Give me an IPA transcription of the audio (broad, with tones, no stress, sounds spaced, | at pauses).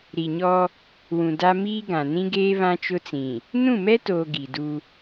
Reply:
ɾ i˨ ɲ ɔ˦ | w ũ˨ d a˦ m iː˦ ɡ ã˨ n ĩ˦ ɡ eː˦ β ã˦ t͡ʃ ʊ˦ t͡s ĩ˨ | n ũ˦˨ m ɛ˦ t oː˨ ɡ i˨ d u˦